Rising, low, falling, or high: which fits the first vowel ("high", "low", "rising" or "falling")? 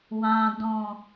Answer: low